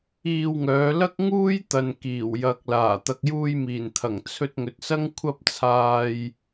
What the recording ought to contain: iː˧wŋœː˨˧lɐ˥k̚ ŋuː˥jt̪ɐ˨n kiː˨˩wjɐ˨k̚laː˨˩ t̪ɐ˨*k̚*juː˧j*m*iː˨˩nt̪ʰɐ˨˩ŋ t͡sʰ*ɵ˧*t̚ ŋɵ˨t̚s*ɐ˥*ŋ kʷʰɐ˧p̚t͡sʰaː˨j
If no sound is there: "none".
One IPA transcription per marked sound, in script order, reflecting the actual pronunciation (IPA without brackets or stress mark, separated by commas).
k̚, m, ɵ˧, ɐ˥